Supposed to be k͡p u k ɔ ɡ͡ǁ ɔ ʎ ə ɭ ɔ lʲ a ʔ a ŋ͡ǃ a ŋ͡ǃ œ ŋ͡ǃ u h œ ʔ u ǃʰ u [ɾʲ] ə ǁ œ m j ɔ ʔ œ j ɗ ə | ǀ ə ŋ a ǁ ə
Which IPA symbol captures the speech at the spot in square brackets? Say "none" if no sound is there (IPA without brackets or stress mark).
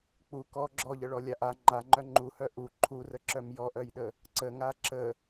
r